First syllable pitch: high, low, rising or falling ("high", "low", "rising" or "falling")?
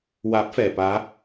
rising